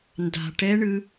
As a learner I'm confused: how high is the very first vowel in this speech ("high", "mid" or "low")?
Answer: low